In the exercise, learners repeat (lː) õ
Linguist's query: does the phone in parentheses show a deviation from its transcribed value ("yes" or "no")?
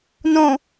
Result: yes